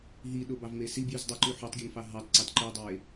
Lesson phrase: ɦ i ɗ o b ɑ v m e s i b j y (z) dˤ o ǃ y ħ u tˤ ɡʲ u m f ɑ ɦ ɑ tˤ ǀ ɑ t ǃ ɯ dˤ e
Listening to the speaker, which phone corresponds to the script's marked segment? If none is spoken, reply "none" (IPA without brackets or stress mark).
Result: z